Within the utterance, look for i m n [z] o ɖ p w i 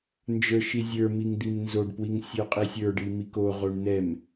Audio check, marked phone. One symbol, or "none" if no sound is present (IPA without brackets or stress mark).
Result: z